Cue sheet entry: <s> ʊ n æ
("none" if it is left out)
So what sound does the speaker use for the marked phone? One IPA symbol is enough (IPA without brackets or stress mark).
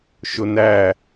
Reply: ʃ